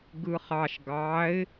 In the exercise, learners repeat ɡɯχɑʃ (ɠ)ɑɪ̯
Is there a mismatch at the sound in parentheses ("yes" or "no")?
yes